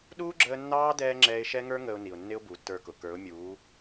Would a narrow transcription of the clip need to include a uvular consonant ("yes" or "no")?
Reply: no